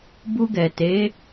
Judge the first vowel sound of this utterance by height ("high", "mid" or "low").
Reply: high